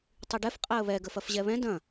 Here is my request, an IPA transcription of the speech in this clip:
tˤ i ɖ ɛ f qʼ a ə̯ β ɛ ɡ ə f ɐ f ʑ ɛ β ɛ̃ d ɐ̃

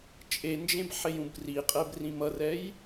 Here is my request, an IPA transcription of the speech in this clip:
t͡ʃʼ e n d͡ʒ ẽ b ħ e j ũ b r i qʼ ɛ b r ĩ m ʌ r ɛ j

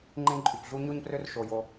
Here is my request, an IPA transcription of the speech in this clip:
ŋ͡ǃ ẽ˦ ǃʼ y˨ p ɮ u˦ ɲ o˥ ɲ p r ø˥ r ʃ o˦ j o˥

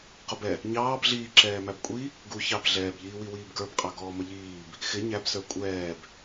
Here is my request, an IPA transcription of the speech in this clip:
q ʊ b ɛ | ɲ ɑː b ɮ iː ǁ ɛː m æ b kʷʼ i | ɡ u ç ɑ b ɮ ɛː b ʎ iː w i w iː b ɡ ə˞ b qʼ ɑ ɡ ɔː m ə ʎ iː b | x ɪ ɲ æ b s ə˞ kʷʼ ɛː b

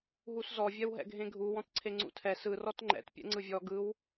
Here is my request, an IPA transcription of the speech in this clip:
ɦ u s z ɔ vʲ ɛ w ɦ ɛ̰ ɡʱ ẽ ɡʱ u w ɔ̃ t ǀʰ e ŋ͡ǀ ṵ tʰ ɛ s ɯ r ɔ t ŋ͡ǃ ɛ̰ t pʲ ɛ̰ ŋ͡ǀ ɯ vʲ ɔ ɡ ɯ w

